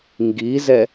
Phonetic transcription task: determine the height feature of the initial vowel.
high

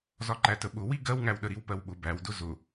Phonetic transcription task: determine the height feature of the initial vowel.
low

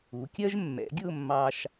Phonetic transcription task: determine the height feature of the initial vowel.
high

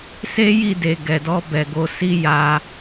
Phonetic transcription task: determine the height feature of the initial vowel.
mid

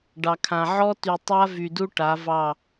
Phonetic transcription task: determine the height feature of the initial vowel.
low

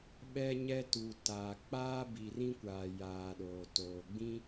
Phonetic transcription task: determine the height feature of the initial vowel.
mid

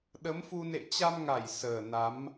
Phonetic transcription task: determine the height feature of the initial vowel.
mid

